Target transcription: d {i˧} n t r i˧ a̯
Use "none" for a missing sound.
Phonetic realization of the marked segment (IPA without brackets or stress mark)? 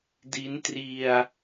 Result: i˦˥